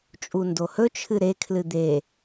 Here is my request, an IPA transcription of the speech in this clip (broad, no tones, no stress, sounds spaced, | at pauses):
t͡ʃʼ u n d o h ɵ t͡ʃʰ ɨ ɾ e kʰ l ɨ d̪ e